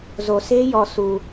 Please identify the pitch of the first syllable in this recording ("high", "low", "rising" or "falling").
low